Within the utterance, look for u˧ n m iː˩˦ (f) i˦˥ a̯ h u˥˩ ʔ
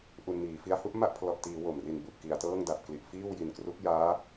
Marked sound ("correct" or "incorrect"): correct